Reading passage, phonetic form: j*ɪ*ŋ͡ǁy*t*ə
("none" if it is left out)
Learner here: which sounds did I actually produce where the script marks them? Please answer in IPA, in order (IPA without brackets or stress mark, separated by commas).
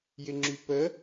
ɪ, p